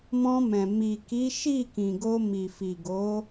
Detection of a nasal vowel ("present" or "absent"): present